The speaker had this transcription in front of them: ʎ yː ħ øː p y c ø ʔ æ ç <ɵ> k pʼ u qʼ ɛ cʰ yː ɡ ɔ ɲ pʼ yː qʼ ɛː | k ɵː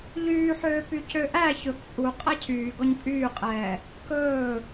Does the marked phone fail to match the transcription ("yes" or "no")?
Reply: no